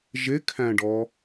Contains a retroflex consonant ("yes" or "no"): yes